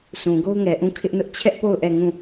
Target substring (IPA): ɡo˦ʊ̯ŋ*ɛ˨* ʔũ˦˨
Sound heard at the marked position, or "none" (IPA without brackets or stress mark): ɛ˨